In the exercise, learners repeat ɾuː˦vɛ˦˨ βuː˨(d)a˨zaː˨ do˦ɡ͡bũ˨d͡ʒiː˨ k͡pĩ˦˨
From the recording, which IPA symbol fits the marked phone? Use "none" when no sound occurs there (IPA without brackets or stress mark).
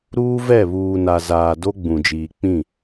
n